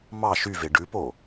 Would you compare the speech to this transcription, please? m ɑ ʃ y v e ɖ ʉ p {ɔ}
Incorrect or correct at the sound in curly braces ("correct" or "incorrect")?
incorrect